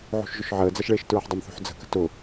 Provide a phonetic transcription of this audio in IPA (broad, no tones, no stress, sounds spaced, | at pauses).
ʕ o̤ ʃ ʒ ʊ ʃ ʕ əː d͡z ɐ ʃ ɭ eː ʃ t ɹ ɐ ħ dˤ ə m θ o̤ ħ d͡z ə̤ k ə̤ t ʊ